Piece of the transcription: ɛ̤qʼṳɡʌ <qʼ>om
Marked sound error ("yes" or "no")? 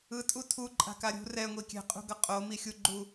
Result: no